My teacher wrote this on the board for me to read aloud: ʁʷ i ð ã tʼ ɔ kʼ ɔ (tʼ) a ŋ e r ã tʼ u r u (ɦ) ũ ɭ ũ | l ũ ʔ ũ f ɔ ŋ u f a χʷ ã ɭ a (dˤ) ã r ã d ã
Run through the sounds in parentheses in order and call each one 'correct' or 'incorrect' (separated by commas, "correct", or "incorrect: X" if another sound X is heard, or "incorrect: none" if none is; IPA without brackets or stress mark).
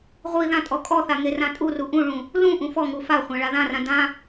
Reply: incorrect: θ, incorrect: ʔ, incorrect: ð